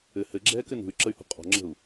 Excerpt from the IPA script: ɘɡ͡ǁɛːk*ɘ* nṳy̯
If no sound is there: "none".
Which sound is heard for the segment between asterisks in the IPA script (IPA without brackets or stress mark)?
ɘ